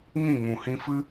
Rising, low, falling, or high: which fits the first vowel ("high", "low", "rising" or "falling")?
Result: falling